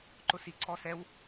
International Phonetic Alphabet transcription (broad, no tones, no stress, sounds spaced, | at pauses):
ǃ ʊ s i ǀ ɔ s ɛ w